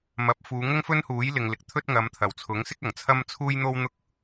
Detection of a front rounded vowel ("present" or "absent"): absent